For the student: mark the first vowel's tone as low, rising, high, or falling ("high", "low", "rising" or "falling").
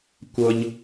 high